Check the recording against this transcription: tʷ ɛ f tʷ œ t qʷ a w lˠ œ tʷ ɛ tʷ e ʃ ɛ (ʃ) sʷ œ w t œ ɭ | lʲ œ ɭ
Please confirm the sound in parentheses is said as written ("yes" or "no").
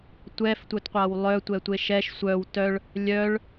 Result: yes